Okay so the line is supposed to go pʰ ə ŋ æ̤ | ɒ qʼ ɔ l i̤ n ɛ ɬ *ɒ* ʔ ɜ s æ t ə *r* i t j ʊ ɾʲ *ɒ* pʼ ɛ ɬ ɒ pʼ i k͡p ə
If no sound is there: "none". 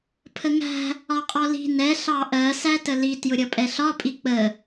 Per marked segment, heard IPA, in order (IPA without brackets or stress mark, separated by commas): ɑ, l, ʌ